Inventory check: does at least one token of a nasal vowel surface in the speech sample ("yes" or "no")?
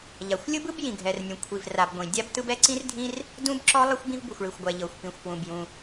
yes